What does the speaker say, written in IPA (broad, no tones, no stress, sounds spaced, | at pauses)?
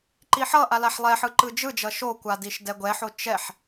ǃ i ħ ʌ ʔ a l a ħ lˠ ɛ ħ ɯ ǃ ɯ d͡ʒ ɯ d͡ʒ ʌ ʃ o kʷ a d i ʃ d ɛ ɡʷ ɛ ħ o t͡ʃ ɛ ħ